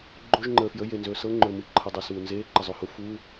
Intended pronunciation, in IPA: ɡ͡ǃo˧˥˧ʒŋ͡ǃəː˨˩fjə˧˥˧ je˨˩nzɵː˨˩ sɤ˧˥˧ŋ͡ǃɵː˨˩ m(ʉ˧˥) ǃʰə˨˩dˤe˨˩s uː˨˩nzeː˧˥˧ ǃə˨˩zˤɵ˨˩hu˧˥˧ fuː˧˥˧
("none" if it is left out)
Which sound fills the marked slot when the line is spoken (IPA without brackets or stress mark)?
ɨ˧˥